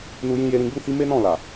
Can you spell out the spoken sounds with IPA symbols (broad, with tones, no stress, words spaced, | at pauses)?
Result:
nu˧ jĩ˧ je˧ɾĩ˧ɡ͡bu˦hi˦ me˦nɔ̃˦˨la˨